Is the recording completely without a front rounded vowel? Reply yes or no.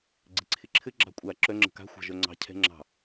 no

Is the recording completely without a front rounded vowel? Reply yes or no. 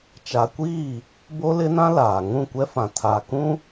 yes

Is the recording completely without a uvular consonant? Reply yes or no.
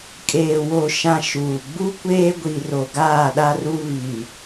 yes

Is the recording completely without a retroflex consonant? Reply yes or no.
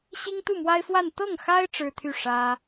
no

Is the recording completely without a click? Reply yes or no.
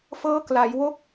yes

